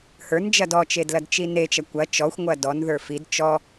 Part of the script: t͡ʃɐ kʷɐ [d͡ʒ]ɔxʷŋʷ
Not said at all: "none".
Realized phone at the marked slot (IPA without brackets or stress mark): t͡ʃ